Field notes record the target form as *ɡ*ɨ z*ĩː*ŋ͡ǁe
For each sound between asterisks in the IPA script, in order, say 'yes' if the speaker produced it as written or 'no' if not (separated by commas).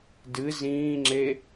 no, yes